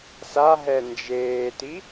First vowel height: low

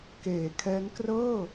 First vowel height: mid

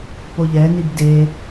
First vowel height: mid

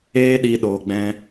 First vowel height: mid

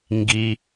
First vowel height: high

